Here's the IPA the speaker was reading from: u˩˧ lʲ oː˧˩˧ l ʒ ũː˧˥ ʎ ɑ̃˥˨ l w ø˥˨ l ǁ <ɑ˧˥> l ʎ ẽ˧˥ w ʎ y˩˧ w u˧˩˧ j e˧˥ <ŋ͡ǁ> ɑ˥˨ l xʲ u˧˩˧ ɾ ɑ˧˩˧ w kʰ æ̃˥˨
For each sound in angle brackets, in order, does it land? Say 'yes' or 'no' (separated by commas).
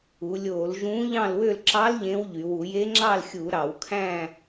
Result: yes, yes